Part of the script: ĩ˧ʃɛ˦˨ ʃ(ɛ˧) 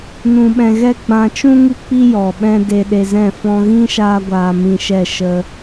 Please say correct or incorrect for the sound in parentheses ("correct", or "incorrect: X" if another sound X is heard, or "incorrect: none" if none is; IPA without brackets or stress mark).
incorrect: ə˧